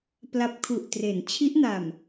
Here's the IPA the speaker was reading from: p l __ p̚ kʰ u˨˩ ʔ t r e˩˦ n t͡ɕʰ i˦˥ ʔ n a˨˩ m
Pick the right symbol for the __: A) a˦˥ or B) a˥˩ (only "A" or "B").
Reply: A